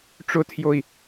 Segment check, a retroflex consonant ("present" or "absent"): present